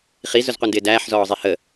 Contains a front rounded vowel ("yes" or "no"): no